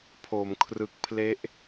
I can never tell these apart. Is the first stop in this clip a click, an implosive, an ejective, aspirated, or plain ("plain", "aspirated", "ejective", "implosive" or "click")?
aspirated